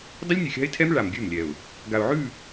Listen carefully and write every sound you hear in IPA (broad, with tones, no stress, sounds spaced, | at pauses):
dˤ ə˦ lʲ nʲ ʉ˨ xʲ a̤˦ ɪ̯ tʰ ɛ˦ m ɭ a˨ m ɡʲ ʉ˦˨ m lʲ ɛ˨ ʊ̯ | ɡ a˨ ʊ̯ ʕ ʉ˦˨